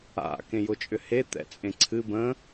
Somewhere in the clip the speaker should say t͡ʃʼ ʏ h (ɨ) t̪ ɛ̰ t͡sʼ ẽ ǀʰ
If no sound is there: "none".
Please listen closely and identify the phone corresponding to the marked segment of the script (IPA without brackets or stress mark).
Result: e